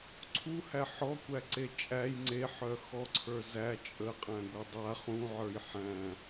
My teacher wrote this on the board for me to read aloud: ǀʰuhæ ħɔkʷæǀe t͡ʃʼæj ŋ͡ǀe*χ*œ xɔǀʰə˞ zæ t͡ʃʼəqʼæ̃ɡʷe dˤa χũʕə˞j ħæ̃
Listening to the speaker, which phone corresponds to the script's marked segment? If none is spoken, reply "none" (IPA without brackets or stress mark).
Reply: ħ